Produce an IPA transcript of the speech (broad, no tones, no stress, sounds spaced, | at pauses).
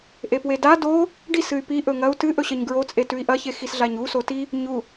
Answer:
ʔ e p w e d a d o | ɖ i s ɨ y̯ p i ʔ ɵ ŋ ɐ u̯ t ɨ ʔ ɵ ɕ ɐ ɲ ɡ ɹ o t͡sʼ e t ʉ i̯ ʔ ɐ ç e x i s ɮ a ɲ u s o t i | ɲ u